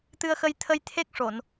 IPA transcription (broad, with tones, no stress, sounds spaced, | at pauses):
t̪ ɨ˧ ə̯ x ə˧ j t̪ʰ ə˧ j t̪ʰ e˦˥ k̚ ʂ o˨˩˨ n